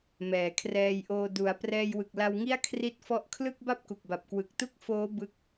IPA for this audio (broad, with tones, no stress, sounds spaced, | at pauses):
m ɛː˩˦ kʰ r ɛː˧ j ʔ oː˧ d u˩˦ a̯ p r ɛː˧ j w ɯ˨˩ k̚ l a˧ w ŋ i˥˩ a̯ kʰ r i˦˥ t̚ f ɔ˦˥ ʔ kʰ l ɯ˥˩ k̚ b a˥˩ p̚ k u˨˩ k̚ b a˨˩ p̚ k w ɯ˨˩ k̚ t u˥˩ k̚ f oː˦˥ b ɯ˦˥ k̚